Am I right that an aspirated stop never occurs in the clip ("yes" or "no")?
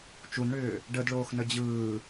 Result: yes